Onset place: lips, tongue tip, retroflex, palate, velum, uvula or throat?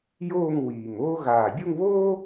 palate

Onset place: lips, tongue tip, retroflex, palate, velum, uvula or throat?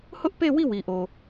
throat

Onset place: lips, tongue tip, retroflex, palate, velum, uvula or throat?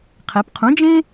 uvula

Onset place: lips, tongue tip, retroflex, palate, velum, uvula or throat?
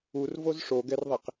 tongue tip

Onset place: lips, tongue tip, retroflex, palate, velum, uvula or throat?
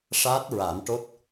retroflex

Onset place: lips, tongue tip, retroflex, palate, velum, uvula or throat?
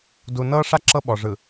tongue tip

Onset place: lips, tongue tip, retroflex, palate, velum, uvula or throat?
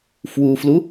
lips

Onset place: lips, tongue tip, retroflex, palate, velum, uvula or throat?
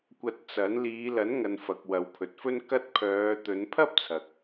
velum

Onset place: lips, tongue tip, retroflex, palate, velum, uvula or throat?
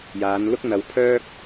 palate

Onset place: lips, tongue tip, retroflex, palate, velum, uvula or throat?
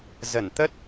tongue tip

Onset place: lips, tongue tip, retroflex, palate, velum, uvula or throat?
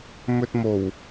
lips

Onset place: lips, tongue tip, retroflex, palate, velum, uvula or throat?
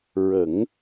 tongue tip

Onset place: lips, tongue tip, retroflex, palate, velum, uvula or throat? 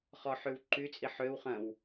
uvula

